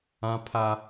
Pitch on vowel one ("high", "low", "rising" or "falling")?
high